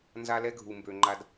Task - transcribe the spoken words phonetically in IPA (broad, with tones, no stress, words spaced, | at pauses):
nza˦lɛ˦ ɡʱu˨mbø˨ŋ͡ǃa˦d